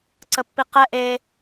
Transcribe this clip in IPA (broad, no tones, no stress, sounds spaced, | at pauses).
ǀ ə pː i q ɛ ʔ e